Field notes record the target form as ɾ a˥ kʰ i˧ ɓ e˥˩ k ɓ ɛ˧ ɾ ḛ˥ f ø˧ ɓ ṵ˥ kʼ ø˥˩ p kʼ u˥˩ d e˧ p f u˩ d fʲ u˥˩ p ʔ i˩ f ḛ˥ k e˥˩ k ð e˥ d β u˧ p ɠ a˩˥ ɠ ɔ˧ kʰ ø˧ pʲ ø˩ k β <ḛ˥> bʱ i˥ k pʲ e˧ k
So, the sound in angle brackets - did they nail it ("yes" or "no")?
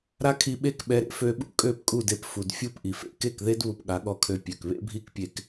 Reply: yes